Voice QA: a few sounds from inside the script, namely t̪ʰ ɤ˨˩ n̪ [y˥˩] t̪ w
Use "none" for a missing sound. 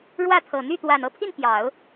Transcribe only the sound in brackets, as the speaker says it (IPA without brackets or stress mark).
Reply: y˥˩